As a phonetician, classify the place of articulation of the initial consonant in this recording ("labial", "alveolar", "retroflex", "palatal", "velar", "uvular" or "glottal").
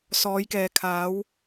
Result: alveolar